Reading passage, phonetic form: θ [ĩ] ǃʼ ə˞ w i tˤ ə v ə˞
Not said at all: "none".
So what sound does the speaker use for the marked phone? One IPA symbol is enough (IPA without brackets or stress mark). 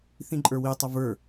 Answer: ĩ